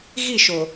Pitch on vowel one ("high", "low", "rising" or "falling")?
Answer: falling